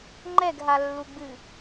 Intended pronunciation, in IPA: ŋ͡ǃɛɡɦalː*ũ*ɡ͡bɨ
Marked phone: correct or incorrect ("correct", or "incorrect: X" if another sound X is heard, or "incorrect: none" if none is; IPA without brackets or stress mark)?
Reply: incorrect: u